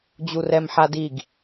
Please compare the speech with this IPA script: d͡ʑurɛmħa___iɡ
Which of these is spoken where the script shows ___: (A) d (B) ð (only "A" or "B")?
A